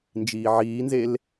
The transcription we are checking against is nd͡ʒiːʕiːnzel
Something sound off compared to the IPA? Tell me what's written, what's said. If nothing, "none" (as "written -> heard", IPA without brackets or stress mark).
none